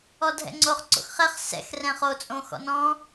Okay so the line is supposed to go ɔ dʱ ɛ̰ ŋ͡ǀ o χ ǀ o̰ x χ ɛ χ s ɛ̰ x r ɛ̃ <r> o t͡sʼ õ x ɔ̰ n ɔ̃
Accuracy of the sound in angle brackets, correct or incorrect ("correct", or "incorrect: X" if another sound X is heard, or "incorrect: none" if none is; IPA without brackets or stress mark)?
incorrect: χ